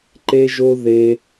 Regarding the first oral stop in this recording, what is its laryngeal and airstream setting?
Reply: click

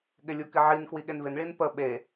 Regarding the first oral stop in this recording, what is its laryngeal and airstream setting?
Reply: implosive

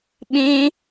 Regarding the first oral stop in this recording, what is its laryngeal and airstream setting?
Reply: implosive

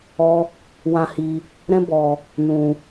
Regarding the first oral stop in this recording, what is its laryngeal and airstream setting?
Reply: plain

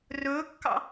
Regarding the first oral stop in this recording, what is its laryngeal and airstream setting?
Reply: plain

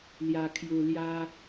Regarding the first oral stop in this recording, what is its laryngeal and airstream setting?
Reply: aspirated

